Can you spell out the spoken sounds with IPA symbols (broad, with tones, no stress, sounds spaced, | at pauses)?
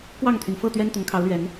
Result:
k w ɑ˥˨ ŋ t̪ʰ y˩ n f ɤ˥˨ t̪ ɥ ɛ˦ n t̪ ʊ˨˦ ŋ kʰ ɑ˨˦ ʊ̯ l ɥ ɛ˨˦ n